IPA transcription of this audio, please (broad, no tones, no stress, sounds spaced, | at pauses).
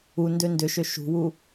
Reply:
u n d ø n d ʏ ʃ ø ʃ ṳ w u